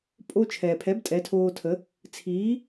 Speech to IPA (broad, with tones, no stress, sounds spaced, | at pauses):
pʼ o˧ t͡ʃʰ ɛː˩ pʰ ɛ˩˥ b tʼ ɛ˩˥ tʰ oː˧ tʰ ə˩˥ | t͡sʰ iː˩˥